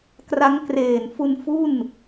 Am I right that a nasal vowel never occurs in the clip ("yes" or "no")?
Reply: yes